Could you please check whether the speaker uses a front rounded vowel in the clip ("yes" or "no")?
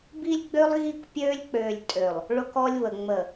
yes